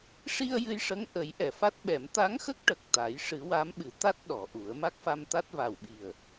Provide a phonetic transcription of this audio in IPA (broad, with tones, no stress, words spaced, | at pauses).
ʂi˧ə̯ jɨ˧jʂə˧˥ŋ ʔə˨˩˦jʔɛ˨˩˨fa˦˥t̚ɓɛ˨˩˦m t̪a˧˥ŋxə˦˥k̚ ʈə˨˩k̚t̪a˨˩˦j ʂɨ˨˩˦wa˧˥mɓɨ˨˩˦t̪a˦˥t̚ ɗɔ˨˩˨ʔu˨˩˦ə̯ ma˦˥k̚fa˧mt̪a˦˥t̚ va˨˩wɓi˨˩ə̯